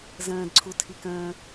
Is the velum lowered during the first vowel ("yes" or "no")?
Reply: yes